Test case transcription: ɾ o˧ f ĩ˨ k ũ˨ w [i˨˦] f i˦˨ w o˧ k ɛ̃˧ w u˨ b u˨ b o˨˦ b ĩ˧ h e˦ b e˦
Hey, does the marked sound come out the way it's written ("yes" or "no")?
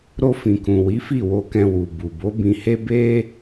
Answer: yes